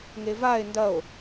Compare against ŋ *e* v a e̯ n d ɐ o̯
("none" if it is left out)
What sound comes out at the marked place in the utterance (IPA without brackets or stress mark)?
e